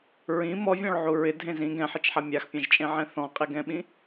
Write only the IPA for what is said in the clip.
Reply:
ɹĩ mɔvʲɔ̃ɭ ʕuɹɪ dʱẽzĩ ɡɛ̃ħit͡ʃħa mʲaxpʲãʒt͡ʃʼẽʕɛ̃ θɔ̃qʼiɡɛ̃ɓĩ

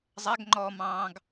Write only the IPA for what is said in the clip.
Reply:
zˤæɡŋ͡ǃɔːmɑ̃ːɡ

